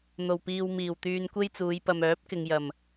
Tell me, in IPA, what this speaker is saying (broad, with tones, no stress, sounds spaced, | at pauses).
n̪ o˨˩ w p iː˨ w m iː˨˩ w t̪ yː˧ n kʷ e˥ j t͡s uː˨˧ j p ɐ˨ m œː˨˥ p̚ k ɪ˨ ŋ j ɐ˨˩ m